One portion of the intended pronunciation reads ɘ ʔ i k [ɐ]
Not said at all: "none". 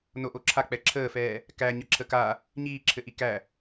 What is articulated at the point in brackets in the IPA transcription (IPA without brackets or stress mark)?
æ